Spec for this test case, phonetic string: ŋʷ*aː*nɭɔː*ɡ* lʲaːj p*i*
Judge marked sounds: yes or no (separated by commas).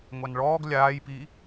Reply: no, yes, yes